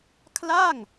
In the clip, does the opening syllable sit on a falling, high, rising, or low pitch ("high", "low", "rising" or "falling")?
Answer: falling